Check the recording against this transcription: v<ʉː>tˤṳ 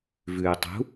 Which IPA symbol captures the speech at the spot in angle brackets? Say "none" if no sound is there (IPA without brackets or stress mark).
ʉː